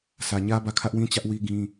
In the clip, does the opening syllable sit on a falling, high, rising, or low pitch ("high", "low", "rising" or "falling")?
low